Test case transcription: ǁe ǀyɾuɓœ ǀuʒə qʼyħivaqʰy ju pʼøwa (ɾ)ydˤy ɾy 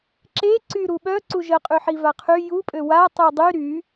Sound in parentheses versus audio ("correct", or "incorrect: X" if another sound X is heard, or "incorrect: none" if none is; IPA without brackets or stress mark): incorrect: tˤ